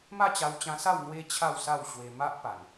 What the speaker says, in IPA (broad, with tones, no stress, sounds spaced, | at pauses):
m a˥˧ t͡ɕ a˧ w t͡ɕ ã˧ s a˥˧ w n̪ w e˦ t͡ɕʰ a˥˧ w s a˥˧ w ɕ w e˧ m a˦ ʔ p a˨˩ n